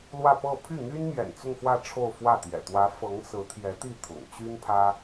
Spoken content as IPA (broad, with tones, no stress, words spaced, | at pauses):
lwä˥˧pɤ˥˧ pʰy˥˩n̪y˥n mjɛ̰˨˩nt͡sʊ˥˧ŋxwä˥˧ ʈ͡ʂʰo˥˧ʊ̯fwä˥˩t̪jɛ̰˨˩ t̪wä˧˥ fɤ˧˥ŋsɹ̩˧˥t̪ʰjɛ˧˥t̪i˥˩ t̪ʰʊ̰˨˩ŋ t͡ɕy˥npʰä˥